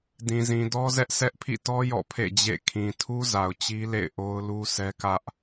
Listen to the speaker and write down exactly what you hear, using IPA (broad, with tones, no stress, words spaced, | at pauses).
dĩ˨zĩ˨dɔ˦zɛ˦ʔ sɛ˦ʔpʰḭ˦˨tɔ˦ jɔ̰˦˨pʰḛ˦˨d͡ʑḛ˦˨ kʰĩ˨tʰu˦za˨ʊ̯ t͡ɕi˦lḛ˦˨ɪ̯ ʔo˦ʊ̯lu˦sɛ˦ kä˦ʔ